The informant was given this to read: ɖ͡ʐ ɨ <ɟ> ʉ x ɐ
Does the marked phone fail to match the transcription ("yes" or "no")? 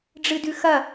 yes